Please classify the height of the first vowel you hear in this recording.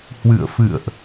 high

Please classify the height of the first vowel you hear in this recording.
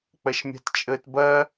low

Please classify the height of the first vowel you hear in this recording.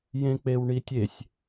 mid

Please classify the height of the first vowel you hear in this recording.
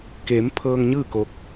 mid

